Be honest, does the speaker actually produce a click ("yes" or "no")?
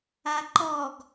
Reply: yes